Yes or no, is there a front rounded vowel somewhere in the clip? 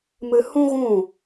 no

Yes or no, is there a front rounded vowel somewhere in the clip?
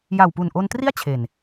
no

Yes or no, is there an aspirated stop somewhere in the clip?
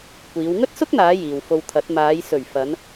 yes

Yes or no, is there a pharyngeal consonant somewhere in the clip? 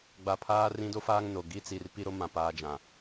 no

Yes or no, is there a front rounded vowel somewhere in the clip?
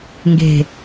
no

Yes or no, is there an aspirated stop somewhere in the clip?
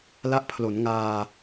yes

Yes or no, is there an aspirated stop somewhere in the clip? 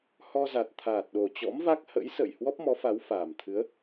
yes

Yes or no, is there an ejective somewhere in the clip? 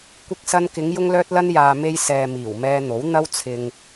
no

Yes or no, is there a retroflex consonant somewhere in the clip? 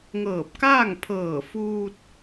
no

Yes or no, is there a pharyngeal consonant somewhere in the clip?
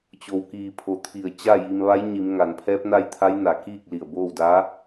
no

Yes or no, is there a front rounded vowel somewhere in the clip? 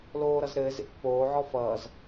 no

